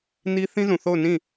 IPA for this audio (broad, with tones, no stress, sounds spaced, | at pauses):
n i˦ θ ĩ˦ z ũ˨ θ o˦˨ ʊ̯ n ĩ˦˨